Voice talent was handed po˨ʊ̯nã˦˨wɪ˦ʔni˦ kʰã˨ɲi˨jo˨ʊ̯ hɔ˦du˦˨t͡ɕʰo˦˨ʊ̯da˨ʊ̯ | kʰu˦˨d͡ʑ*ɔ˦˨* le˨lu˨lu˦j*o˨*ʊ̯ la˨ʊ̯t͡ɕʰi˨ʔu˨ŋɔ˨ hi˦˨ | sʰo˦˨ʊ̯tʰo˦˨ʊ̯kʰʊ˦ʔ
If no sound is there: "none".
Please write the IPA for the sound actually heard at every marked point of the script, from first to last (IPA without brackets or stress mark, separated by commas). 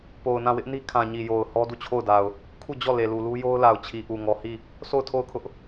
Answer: ɔ˦˨, o˦